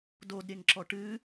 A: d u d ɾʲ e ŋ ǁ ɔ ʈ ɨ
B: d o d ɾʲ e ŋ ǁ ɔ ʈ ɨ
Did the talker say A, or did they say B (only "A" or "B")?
B